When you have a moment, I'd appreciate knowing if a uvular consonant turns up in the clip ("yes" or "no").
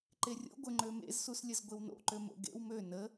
no